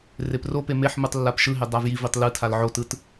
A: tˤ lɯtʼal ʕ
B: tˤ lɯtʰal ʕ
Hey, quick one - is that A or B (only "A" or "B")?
B